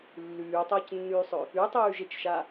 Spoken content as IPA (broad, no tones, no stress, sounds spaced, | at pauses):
lː ʉː tˤ ɐː c nː ʉː sˤ ɵ | ʉ tˤ ʉː ʒ e t͡ʃ ʃ a